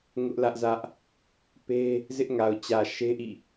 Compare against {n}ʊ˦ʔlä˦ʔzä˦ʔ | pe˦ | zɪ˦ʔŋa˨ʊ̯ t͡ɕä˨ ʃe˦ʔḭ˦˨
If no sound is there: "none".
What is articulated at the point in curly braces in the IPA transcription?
ŋ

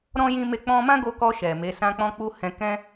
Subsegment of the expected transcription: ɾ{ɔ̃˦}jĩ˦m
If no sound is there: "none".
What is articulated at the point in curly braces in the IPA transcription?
ɔ̃˦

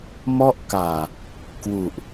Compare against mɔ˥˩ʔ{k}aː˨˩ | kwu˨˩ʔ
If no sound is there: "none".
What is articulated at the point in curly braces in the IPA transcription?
k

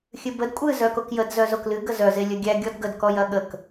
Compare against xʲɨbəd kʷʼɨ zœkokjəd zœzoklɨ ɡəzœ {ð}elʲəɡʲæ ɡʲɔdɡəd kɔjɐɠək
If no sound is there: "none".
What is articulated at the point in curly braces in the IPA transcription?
z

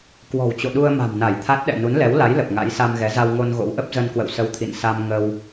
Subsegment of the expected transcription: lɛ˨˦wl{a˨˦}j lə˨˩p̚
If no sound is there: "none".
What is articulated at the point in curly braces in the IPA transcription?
a˨˦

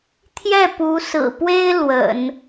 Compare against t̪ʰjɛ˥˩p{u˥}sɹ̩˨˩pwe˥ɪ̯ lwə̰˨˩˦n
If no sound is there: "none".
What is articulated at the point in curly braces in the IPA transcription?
u˧˥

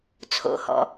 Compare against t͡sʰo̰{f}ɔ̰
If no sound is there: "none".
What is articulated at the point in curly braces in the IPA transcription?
h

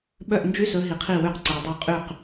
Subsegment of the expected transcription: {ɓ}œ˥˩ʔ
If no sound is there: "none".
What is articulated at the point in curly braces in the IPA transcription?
ɓ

